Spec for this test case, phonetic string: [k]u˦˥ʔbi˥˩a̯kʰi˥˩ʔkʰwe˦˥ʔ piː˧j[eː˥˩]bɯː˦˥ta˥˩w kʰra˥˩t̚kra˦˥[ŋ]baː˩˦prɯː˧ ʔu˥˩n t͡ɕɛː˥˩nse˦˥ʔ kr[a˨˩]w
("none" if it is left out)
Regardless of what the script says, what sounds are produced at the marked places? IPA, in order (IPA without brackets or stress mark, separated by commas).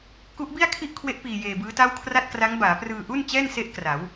k, eː˧, ŋ, a˩˦